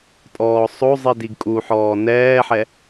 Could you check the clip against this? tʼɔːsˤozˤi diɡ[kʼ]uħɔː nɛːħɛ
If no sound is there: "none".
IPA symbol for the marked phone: kʼ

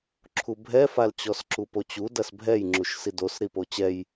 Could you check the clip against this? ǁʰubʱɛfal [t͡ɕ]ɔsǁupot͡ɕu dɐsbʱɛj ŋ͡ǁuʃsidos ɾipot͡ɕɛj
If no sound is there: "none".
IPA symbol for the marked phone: t͡ɕ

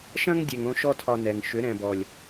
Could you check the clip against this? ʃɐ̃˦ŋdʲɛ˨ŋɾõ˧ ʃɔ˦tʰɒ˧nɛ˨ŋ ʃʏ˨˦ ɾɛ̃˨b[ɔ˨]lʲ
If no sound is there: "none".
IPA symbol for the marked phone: ɔ˨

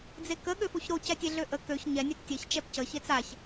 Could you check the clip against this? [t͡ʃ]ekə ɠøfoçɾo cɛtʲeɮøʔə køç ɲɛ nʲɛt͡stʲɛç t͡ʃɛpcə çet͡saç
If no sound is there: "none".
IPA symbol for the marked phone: d͡z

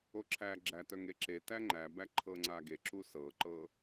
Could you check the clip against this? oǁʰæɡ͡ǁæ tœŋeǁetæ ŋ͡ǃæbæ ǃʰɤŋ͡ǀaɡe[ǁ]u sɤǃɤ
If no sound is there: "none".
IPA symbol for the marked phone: ǁ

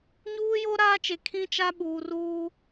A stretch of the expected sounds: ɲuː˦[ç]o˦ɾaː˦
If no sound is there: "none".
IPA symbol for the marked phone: j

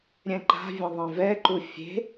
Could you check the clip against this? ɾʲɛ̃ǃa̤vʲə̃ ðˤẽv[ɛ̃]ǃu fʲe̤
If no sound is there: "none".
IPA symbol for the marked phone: ɛ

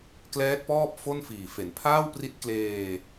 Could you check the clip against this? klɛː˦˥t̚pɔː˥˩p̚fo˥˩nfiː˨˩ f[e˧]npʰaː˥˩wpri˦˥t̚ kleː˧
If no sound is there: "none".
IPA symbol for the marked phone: e˩˦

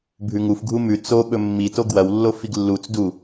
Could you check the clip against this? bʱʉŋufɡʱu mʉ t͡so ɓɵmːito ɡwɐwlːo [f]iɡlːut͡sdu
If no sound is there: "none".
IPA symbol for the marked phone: f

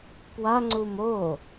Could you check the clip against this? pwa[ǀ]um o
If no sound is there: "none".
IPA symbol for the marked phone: ŋ͡ǀ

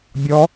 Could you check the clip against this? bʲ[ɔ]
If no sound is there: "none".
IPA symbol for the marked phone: ɔ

